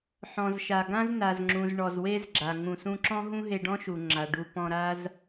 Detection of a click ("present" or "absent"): present